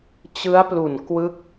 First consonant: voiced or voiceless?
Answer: voiceless